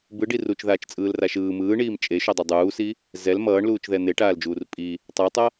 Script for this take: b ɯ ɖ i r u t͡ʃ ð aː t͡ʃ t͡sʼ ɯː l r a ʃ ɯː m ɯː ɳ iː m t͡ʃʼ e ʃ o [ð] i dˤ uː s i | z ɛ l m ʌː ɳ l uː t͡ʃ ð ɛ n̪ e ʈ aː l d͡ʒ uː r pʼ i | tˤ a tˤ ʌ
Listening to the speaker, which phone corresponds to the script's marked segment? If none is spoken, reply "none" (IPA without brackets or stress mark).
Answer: dˤ